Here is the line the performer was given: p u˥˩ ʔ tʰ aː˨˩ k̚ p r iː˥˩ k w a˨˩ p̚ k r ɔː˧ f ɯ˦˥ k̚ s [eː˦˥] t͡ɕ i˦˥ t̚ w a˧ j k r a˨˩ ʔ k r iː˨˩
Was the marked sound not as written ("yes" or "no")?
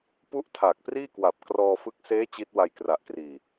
no